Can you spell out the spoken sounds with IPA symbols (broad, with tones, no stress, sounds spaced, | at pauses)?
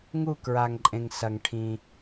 ŋ u˦˨ k ɹ a˩ ŋ ǃʼ ẽ˩ ŋ s ɐ˩ ŋ ʈʰ ĩ˩